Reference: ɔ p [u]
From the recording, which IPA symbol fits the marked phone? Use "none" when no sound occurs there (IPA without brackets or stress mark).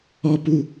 u